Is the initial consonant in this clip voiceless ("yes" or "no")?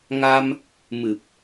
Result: no